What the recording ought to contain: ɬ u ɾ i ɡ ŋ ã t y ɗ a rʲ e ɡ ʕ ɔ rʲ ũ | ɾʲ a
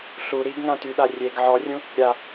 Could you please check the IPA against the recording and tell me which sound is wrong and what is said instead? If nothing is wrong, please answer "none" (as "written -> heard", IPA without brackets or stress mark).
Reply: none